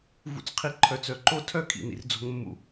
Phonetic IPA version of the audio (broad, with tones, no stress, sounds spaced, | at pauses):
v ṵ˨ t͡s qʰ i˨ ǃʰ œ˨ t͡s œ˨ ǃ o˦ tʰ œ˦ kʰ ḭ˨ n ḭ˨ r d͡z o̤˦ ŋ mː ṵ˦